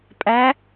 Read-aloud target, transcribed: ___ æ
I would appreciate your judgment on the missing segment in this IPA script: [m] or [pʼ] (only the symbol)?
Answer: pʼ